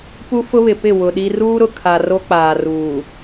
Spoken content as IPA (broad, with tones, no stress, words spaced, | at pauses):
pu˦fʊ˦βɪ˨pɪ˦˨ wʊ˨ɗi˦ ruː˦ɾʊ˨kʰa˨ ro˦k͡paː˨ ruː˨